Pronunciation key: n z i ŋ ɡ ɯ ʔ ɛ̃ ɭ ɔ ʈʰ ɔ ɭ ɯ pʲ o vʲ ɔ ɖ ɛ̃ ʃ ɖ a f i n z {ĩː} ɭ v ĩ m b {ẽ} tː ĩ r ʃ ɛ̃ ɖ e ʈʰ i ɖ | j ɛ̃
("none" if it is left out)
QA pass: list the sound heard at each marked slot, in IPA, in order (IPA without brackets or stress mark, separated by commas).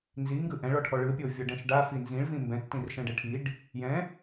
ĩ, ɛ̃